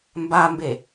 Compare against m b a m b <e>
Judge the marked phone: correct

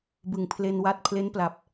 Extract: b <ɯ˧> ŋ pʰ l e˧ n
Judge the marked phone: incorrect: ɯ˨˩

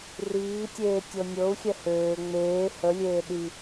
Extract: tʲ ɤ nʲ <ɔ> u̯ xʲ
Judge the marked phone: incorrect: ɤ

